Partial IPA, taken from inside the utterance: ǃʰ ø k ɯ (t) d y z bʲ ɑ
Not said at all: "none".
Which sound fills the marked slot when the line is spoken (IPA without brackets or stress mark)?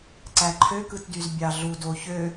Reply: t